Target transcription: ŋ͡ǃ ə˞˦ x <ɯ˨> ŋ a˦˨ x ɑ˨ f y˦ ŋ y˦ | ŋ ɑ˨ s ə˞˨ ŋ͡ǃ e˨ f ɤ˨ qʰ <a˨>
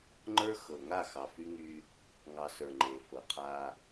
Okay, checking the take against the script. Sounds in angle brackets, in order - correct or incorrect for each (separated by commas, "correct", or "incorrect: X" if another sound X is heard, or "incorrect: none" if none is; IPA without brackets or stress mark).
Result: incorrect: ɤ˨, incorrect: a˦